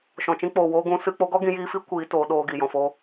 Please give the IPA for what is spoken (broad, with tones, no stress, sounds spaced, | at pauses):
ʃ ɔ̃˨ t͡ʃ ĩ˧ k͡p oː˨ w oː˧ ɡ ũ˨˦ s ɨ˧ k͡p o˦ ɡ ɔ˦ ɡ ĩ˨˦ j iː˧ f i˦ kʷ iː˨˦ t oː˧ ɗ oː˧ ɡ i˨ j ɔ̃˨ f o˧